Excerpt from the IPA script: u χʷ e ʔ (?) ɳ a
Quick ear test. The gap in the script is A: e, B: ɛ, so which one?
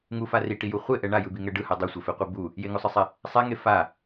B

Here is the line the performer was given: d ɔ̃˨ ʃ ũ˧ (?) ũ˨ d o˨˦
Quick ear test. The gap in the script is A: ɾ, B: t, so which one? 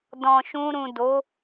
A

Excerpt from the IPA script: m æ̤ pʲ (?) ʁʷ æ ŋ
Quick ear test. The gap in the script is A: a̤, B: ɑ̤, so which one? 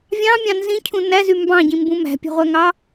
B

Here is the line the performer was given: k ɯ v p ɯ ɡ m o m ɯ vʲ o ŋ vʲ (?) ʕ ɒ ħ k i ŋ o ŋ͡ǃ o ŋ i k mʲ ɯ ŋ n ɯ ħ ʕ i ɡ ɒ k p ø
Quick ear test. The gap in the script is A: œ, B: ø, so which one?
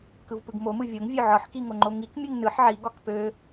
B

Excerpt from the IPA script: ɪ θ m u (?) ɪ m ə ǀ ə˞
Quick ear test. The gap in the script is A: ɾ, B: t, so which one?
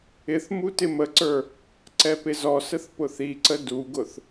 B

